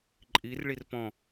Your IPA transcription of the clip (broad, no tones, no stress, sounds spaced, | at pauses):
ǃʼ i r ɭ i r p ɔ̃